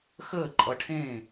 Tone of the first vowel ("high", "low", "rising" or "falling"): falling